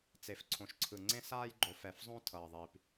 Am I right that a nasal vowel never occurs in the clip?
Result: no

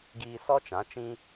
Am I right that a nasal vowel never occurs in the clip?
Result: no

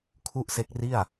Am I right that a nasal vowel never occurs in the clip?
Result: yes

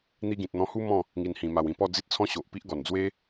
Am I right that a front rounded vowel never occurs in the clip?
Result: yes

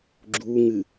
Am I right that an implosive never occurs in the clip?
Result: yes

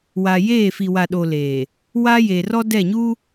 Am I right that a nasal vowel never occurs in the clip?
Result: yes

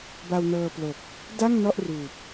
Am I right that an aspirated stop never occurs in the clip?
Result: yes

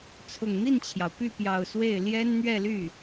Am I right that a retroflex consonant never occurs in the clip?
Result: yes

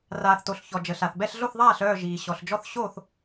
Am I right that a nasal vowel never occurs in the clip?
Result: yes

